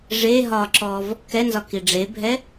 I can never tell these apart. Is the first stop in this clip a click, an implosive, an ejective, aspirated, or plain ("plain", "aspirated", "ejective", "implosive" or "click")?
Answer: click